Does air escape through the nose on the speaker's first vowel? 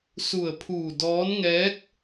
no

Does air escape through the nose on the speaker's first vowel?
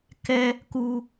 no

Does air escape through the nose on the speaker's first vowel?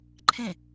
yes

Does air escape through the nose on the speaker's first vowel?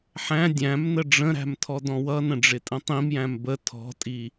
yes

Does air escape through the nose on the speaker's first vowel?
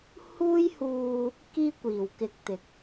no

